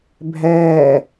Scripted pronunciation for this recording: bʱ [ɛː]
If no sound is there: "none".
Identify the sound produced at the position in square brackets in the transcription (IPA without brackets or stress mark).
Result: ɛː